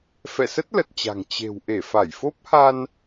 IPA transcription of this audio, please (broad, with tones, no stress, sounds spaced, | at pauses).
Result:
f ɛ̰˧˨ s ə˦˥ t̚ l ə˨˩ t̚ t͡ɕ a̤˨˩ ŋ t͡ɕ e̤˨˩ w ʔ e˧˩ f a˧˩ j f o˦˥ p̚ h a˧ n